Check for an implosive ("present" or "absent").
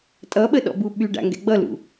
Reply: present